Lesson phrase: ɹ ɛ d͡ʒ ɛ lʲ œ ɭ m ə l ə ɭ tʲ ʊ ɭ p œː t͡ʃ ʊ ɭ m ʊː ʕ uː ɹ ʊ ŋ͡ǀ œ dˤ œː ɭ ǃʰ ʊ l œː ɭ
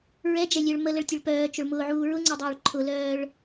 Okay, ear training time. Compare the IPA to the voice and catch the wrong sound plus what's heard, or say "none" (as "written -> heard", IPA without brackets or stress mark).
none